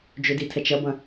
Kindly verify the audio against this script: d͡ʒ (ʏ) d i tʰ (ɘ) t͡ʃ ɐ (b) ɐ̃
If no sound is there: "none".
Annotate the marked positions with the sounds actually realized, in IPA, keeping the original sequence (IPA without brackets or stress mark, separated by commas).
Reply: ʏ, ɛ, b